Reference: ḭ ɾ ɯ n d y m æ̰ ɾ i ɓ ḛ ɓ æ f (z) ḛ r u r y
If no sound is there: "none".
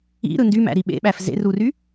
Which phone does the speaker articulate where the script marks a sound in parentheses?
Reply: z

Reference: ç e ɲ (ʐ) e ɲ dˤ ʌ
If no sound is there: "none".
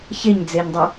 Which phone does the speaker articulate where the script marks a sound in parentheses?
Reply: d͡z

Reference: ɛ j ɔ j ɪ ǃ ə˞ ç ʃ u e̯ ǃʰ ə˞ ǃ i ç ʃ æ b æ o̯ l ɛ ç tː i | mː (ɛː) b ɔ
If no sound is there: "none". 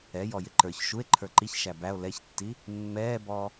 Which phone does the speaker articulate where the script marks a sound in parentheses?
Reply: ɛː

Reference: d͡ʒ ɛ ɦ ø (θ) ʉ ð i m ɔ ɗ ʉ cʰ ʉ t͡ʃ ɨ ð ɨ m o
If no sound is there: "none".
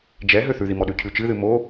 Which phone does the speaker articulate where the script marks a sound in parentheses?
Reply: θ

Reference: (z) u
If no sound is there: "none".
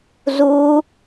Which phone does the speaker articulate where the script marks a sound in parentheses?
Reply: z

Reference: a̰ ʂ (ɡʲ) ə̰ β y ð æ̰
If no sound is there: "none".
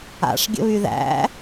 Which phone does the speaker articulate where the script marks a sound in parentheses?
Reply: ɡʲ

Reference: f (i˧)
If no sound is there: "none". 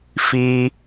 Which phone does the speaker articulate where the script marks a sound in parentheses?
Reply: i˧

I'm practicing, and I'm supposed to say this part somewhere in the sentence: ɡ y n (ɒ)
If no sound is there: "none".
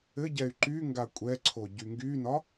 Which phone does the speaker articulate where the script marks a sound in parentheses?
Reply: ɒ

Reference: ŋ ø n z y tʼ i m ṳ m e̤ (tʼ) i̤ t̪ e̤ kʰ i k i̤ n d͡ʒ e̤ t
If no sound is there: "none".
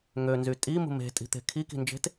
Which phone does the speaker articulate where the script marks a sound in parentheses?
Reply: tʼ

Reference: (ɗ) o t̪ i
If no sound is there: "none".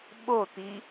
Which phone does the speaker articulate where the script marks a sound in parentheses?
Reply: ɓ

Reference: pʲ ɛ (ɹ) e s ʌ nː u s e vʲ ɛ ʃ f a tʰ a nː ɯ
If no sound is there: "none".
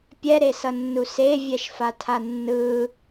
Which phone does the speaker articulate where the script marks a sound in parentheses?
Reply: ɾ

